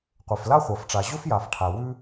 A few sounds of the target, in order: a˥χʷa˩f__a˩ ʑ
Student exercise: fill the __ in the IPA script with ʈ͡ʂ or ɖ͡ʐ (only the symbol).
ʈ͡ʂ